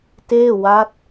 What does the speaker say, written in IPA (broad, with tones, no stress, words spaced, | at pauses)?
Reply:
teː˥˩ wa˦˥t̚